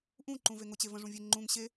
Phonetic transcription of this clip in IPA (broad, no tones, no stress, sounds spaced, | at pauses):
ʔ ũ ǃ ũ v e ŋ ʊ t͡ɕ e v ə̃ ʐ ũ vʲ e ŋ͡ǃ ũ ŋ ɕ e